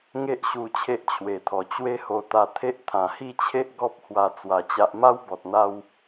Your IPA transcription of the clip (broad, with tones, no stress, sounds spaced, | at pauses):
ŋ e˦ ʔ ɕ u˧ t͡ɕʰ e˦ ʔ t͡ɕʰ w e˨˩ t̪ʰ ɔ˨˩ t͡ɕ w e˦ h o˧ t̪ a˧ t̪ʰ e˦ ʔ t̪ʰ ã˨˩ h i˥˧ t͡ɕʰ e˦ ʔ ɡ ɔ˦ p̚ h w a˧ t͡s w a˧ t͡ɕ a˦ ʔ m a˦ w b ɔ˨ t̚ n̪ a˧ w